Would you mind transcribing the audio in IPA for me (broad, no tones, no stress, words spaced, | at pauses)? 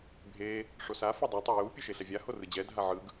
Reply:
bʱe | ʂosa fudˤa tˤoju pʲɯʃeɬɛvʲa horɯd͡ʑɛ dʱaʕɯɡ